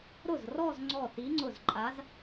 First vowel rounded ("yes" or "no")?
yes